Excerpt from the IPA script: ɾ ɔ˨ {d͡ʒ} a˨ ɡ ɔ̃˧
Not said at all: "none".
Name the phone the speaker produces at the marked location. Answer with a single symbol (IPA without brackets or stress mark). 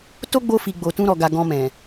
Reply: ɡ